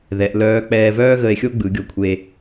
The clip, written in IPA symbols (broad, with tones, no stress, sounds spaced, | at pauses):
ð ɛ˩˧ ʔ l œː˧˥ k͡p ɛː˧ v œː˥ ɣ ə˧ e̯ xʲ o˥ ɡ͡b ɯ˩˧ ɡʲ o˧ kʷʰ e˧